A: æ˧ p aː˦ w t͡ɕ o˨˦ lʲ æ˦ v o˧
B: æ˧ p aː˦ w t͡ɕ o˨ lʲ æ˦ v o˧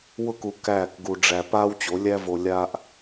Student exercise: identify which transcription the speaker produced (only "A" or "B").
A